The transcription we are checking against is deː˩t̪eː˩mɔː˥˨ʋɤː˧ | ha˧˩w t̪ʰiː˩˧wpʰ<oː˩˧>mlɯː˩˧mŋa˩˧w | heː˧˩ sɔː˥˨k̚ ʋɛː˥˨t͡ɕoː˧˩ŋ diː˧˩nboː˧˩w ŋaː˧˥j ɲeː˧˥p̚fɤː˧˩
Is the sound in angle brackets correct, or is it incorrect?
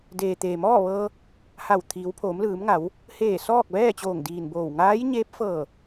correct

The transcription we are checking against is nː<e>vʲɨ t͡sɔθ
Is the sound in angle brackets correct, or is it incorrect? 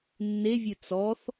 correct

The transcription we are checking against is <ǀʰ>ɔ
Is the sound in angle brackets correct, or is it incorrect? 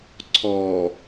correct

